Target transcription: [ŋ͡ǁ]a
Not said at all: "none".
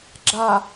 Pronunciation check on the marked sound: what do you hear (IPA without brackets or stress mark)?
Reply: ɡ͡ǁ